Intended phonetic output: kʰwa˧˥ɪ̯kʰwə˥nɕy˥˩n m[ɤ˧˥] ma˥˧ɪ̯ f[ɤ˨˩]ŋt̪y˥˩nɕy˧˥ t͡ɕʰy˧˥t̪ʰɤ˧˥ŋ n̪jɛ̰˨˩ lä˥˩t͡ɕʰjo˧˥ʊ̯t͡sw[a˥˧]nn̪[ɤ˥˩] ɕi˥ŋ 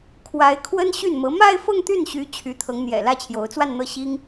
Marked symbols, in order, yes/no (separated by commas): yes, no, yes, yes